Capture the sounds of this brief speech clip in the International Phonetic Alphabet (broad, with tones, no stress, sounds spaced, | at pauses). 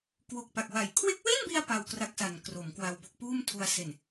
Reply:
k w o˨˩ k̚ p a˨˩ k̚ w a˨˩ j kʰ w e˦˥ k̚ w e˥˩ n b i˧ a̯ p a˧ w k r a˦˥ k̚ s a˨˩ n k r o˩˦ m k w a˧ w b o˦˥ k̚ p uː˥˩ m tʰ u˧ a̯ s e˨˩ n